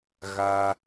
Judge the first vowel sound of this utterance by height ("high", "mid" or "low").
low